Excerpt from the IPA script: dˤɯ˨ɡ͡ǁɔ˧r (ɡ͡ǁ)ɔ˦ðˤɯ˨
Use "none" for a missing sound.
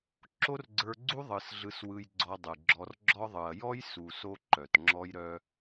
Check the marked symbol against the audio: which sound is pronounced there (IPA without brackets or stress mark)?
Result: ɡ͡ǁ